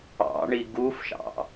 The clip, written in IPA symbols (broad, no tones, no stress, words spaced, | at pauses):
ɑ̰ɳi ɡufʃɑ̰